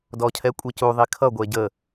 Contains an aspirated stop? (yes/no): yes